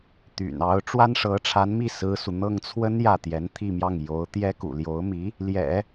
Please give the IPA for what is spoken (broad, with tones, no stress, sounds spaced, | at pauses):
t̪ y̰˨˩ n ɑ˧˥ ʊ̯ ʈ͡ʂ w a˥ n ʂ ɤ˧˥ ʈ͡ʂʰ a˧˥ n m i˥˩ s ɹ̩˥ s u˨ n̪ ɤ˥˩ ŋ t͡sʰ w ə˥ n j ä˥˩ t̪ j ɛ˧˥ n t̪ʰ i˥˧ m j ɑ˥˩ ŋ j o˧˥ ʊ̯ t̪ j ɛ˥ k ṵ˨˩ l j o˧˥ ʊ̯ m i˧˥ | l j ɛ̰˨˩˦